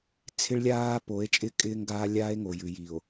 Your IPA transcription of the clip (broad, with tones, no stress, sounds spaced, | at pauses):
t͡sʰ ɪ˦ ɭ lʲ aː˦ p o˨˦ e̯ t͡ʃʼ ɪ˦ kʼ ɪː˦ ŋ ɡ aː˦ lʲ aː˦ e̯ ŋ o˨ j ʉ˨ j i˨ o̯